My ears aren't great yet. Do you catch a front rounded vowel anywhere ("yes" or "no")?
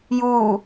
no